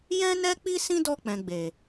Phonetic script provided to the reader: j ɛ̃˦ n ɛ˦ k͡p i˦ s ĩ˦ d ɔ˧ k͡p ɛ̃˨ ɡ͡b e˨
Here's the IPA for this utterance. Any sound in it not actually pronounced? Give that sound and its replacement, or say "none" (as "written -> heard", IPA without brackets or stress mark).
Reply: none